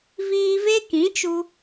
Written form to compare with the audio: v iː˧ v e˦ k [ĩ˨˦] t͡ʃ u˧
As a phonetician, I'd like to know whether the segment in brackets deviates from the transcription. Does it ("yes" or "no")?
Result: no